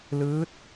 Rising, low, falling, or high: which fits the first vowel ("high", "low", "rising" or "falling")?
rising